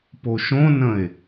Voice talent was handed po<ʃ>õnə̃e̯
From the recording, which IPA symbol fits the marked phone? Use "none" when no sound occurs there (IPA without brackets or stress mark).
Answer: ʃ